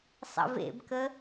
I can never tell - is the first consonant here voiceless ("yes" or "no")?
yes